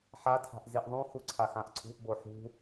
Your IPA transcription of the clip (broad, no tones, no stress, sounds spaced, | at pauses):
ħ a tʰ a̤ ʔ z i ʔ ðˤ ũ x u ǀʰ a x ã ʔ ǀʰ ṳ ʔ b o ħ ṳ